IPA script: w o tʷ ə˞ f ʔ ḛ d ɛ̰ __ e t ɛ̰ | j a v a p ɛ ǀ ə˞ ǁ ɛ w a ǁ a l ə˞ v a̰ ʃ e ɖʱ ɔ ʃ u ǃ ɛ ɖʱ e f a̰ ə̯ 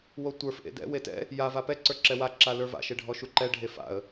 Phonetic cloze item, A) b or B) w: B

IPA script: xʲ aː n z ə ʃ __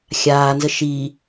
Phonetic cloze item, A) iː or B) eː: A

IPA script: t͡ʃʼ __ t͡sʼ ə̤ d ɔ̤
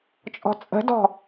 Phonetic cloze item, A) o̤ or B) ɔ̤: B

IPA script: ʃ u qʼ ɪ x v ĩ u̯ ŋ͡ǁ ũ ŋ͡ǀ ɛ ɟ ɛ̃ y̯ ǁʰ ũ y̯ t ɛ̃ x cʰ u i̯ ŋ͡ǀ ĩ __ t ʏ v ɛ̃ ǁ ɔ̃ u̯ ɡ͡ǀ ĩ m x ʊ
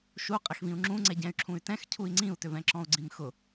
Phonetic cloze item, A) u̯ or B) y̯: A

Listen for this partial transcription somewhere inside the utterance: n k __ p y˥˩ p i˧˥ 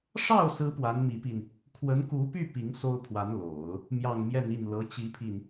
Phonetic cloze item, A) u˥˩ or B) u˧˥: B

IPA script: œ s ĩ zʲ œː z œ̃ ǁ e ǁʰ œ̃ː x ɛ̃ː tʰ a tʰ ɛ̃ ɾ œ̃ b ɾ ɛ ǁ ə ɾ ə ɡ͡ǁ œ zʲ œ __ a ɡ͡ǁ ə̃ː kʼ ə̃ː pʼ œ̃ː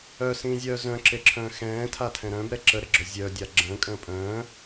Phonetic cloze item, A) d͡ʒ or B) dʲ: B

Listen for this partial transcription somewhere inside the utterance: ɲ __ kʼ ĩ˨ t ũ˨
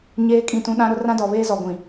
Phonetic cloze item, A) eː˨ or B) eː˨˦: B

